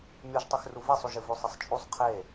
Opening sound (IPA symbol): mʲ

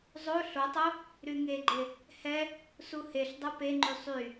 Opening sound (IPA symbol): zˤ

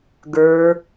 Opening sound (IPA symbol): ɡ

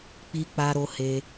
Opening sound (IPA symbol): k͡p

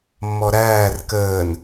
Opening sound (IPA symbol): mː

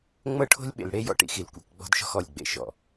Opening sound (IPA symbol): ŋ͡m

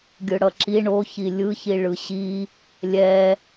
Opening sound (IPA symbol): ɡʲ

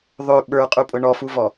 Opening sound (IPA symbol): ðˤ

